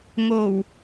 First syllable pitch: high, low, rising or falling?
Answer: low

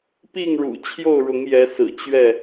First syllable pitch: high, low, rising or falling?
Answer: falling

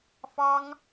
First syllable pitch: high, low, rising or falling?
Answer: high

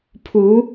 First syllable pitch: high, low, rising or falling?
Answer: rising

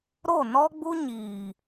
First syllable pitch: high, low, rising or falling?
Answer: falling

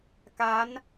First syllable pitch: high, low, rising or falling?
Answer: rising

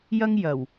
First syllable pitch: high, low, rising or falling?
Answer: high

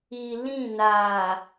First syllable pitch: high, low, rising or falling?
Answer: low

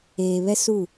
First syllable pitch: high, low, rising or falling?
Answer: low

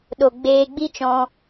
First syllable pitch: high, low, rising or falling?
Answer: low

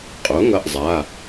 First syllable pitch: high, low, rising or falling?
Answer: rising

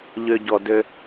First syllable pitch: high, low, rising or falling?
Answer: low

